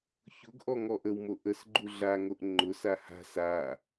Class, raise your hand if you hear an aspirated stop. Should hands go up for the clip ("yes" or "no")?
no